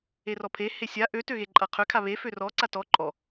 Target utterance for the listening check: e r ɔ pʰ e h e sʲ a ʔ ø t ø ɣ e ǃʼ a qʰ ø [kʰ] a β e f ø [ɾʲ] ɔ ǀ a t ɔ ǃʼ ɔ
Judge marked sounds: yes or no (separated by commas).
yes, no